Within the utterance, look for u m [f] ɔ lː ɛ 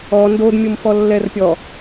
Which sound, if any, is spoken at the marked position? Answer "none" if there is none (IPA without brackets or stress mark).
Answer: f